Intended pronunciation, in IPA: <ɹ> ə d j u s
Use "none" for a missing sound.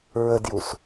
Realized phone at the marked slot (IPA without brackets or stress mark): ɹ